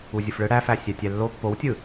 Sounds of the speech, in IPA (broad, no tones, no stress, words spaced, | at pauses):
uzʲɯfɭɯ ɽæfæ sʲætʲælːo pːowtʲɯ